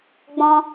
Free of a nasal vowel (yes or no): no